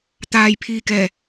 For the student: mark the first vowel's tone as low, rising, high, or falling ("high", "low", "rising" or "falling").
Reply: low